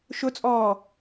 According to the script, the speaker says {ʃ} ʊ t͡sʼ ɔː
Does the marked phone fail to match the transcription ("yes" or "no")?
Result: no